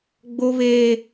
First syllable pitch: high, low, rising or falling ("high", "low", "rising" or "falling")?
high